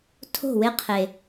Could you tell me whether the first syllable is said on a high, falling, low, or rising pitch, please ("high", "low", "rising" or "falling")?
falling